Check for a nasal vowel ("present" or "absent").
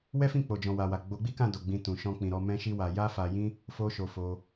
present